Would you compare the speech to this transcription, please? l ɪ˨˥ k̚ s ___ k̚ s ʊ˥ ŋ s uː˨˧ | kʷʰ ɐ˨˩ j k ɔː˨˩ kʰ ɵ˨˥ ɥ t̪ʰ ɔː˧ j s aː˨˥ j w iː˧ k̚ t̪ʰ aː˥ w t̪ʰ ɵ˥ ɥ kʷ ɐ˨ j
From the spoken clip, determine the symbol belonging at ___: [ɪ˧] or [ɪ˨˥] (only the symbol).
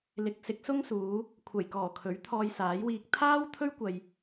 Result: ɪ˨˥